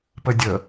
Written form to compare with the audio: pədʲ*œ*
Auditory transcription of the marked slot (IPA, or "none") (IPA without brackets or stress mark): ə